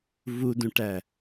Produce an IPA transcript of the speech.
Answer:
vudũʈæ

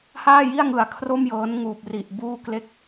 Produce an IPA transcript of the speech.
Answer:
haː˥˩ji˥˩a̯ŋɯ˨˩a̯ kʰro˥˩mjɤː˦˥nŋuː˨˩p̚ri˨˩ʔ buː˥˩kle˥˩k̚

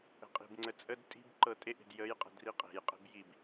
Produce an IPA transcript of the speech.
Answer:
ə̤qʼi̤bŋ͡ǀə t͡sʼəd tʼi̤b ǃɤtʼeʔe̤d jəjqʼə̤ driqʼe̤jqʼe̤b jib

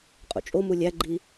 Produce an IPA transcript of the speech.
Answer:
qʼṵt͡ʃʼomu lʲæɡ͡ǃi

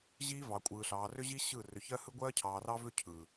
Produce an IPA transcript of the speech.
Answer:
ʑiː˦vɑ˨kʷʼɯː˨ɬɑː˨ rʏ˦ʑi˦ ɕɯ˦˨ rʏ˨çɜ˦hɯ˦ ɡʷɜː˦cʰɑː˨rɑ˦vʏ˦ cʰɯ˨

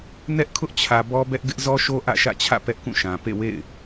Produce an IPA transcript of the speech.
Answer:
nɛ˦ʔkʰʊ˦ʔt͡ɕʰä˨ bɔ˦bɛ˦ʔ ɡɪ˦ʔzɔ˦ʃo˦ ʔä̰˦˨ʃä̰˦˨t͡ɕʰä̰˦˨ pɛ˦ʔkũ˦˨ʃã˨ pḛ˦˨wḛ˦˨ɪ̯

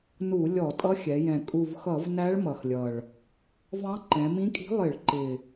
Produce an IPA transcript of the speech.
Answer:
nu˧˩˧ lʲɔ˧˩˧tʼʌ˧˥xʲɛ˩˧jɛ̃˨˩ kʼu˨˩vxʌ˧˩˧vnæ˧˥ɭ mʌ˨˩xlʲʌ˨˩ɭ | vɑ̃˧˥ǃɛ̃˩˧mĩ˧˥kʼi̤˧˥ lˠɪ˧˩˧ɭǃɪ˨˩

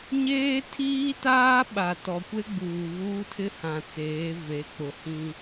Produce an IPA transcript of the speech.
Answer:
ɲeː˦tʰiː˦taː˦ ɓa˨tɔ˨kʷe˦ ɡ͡buː˨ βuː˦tʰɪ˦hã˨t͡seː˨˦ ve˨˦k͡pʊ˨hĩ˦

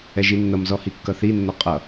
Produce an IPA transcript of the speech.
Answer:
ɛʒinːʌmzɔ hikːʌθinːɔ qʼʌ

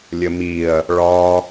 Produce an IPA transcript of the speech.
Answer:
lʲəmiɐ̯ | ɭɒ

